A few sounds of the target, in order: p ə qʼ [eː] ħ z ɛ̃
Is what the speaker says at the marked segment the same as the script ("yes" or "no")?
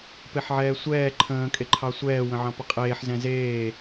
yes